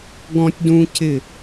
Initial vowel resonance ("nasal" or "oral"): nasal